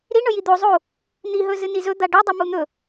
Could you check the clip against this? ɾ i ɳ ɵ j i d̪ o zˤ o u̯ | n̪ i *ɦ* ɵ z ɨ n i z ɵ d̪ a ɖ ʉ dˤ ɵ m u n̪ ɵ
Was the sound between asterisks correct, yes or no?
yes